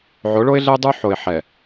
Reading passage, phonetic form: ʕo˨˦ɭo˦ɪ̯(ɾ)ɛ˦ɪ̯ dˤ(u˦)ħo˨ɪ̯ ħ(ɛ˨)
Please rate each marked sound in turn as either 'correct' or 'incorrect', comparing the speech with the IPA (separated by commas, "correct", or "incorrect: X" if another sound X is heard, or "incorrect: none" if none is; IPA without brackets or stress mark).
incorrect: ɮ, correct, correct